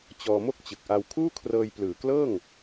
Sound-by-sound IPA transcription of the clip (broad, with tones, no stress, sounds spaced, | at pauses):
t͡ɕ ɔː˧ m o˥˩ k̚ t͡ɕ ɯ˨˩ k̚ ʔ a˧ w kʰ uː˥˩ kʰ r ɤː˧ j p l ɯː˨˩ k l ɤː˥˩ ŋ